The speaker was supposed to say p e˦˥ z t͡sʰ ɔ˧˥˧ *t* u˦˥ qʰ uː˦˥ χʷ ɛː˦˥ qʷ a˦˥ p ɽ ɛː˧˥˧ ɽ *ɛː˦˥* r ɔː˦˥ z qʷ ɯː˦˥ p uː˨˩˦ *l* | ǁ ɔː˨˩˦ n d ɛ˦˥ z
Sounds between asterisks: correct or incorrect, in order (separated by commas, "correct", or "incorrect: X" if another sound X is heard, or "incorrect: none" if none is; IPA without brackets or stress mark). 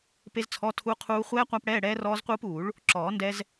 incorrect: tʰ, correct, incorrect: ɭ